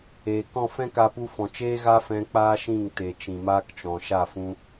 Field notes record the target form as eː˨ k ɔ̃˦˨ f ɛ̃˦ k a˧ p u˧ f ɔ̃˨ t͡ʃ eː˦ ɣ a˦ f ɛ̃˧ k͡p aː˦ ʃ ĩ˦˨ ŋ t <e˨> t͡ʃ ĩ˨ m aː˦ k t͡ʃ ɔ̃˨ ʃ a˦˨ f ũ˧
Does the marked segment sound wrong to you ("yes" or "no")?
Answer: no